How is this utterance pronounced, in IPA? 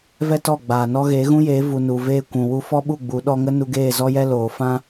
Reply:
vɛ˦ tɔ˦˨ɡ͡baː˨nɔ˦ ɣeː˨˦ɣũ˦jeː˨˦ vu˨nu˨ veː˧ kʷũ˨ wu˧fɔ˦ ɓu˦˨ɡ͡bu˨˦ ɗɔ˧ŋə˦ nu˦ ɡeː˦˨zɔ˦jɛ˦ loː˨ fã˦

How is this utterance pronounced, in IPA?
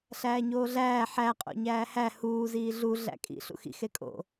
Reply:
ɬæːɲoːɮæː ħæ qʼo̰ɲæːhæ huː ziːɮu ɮæ̰kʼḭ ɬṵxḭ xekʼo̰

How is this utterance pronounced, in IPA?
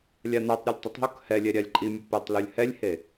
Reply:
lʲanatˤɾʲolʲ tˤɪtˤɦok hɛlʲɛ ɾʲalʲǃʼimʲʊ pɛtˤlulʲ hɛlʲhe

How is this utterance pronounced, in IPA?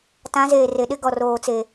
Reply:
tã˨˦zeː˨re˨ɗɪ˦ ɡɔ˨roː˨t͡se˨

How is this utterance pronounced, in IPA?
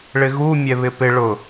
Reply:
ɭɪɣu mʲɛβɪpɪ ɭʊ

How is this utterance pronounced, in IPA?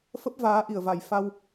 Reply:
fə˦˥p̚ vaː˨˦ʔi˧˩ə̯va˨˩j fa˧w

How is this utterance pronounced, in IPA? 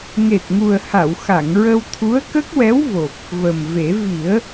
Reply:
ŋe˨˩t̚ŋu˨˩ə̯ha˨˩˨wxa˨˩˨ŋ ɹə˧wt̪ʰu˧˥ə̯kə˦˥k̚wɛ˧˥w vo˨˩p̚ | və˨˩mve˨˩˦ vi˨˩˦ə̯

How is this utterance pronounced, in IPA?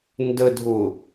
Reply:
ndədʱʊ

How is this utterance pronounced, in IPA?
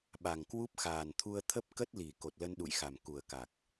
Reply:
ɓa˨˩ŋkwu˦˥p̚xaː˨˩nt̪ʰu˧ə̯ t̪ʰə˦˥p̚ kə˦˥t̚li˨˩ ko˨˩t̚lə˧nɗṵ˧˨jxa˨˩m ku˨˩ə̯ka˨˩k̚

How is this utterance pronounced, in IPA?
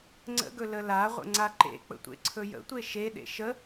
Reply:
ŋ͡ǀə̰ɡɵ ləlaʁʷə̰ ŋ͡ǀaǃḛk͡pə̰ tʷḛǀʰɵjə̰tʷe ʃeɗḛ ʃə

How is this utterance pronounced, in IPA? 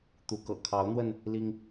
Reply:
t̪u˨˦kɤ̰˨˩ kʰɑ˨˦ʊ̯n̪wə˧n | li˦ŋ

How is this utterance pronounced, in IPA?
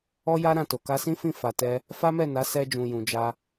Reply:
ɔ˦ja˦ ɾã˦˨to˨ ka˧sĩ˦ fĩ˦˨ fa˨tɛ˧ | fa˦mɛ˦˨ na˨˦sɛ˧ d͡ʒũ˨jũ˨d͡ʒa˧

